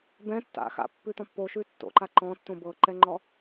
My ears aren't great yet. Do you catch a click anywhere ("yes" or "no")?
yes